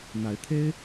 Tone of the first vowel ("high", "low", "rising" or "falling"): rising